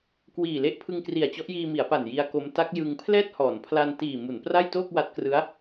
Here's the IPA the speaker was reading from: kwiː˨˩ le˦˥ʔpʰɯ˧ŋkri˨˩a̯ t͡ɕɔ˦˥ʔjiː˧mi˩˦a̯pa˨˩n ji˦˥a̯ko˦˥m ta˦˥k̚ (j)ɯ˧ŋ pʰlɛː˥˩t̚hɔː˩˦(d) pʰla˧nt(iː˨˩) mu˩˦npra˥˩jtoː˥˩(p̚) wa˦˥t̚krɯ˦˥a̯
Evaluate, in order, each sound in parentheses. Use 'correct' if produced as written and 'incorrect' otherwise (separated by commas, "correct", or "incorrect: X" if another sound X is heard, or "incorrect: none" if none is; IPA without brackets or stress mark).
correct, incorrect: n, correct, incorrect: k̚